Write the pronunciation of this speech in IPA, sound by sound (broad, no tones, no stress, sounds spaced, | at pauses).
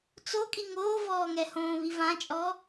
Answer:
t͡s o kʼ i ŋ oː v ɔː ŋ ɛ h õː β i v ã t͡ʃʼ ɔ